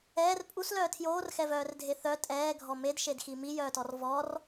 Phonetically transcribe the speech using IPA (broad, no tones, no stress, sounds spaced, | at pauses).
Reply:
ɛː r pʼ u s l œː tʰ j oː r x ɛ v œː r dʱ e θ œ tʼ ɛː ɡʱ ɔ m e d ʃ e d x i m i j œː t ɔ r v ɔ r